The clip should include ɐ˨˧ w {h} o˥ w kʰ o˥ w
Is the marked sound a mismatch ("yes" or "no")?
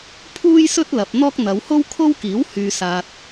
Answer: no